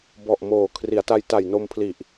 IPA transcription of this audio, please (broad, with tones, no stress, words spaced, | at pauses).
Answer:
bɔ˨˩ʔ moː˨˩ kʰri˩˦a̯ta˧jta˨˩j no˧mpʰli˨˩ʔ